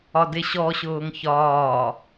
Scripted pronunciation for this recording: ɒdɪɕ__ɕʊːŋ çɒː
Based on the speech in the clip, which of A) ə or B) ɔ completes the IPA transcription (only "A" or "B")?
B